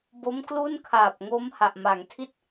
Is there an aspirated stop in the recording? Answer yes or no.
yes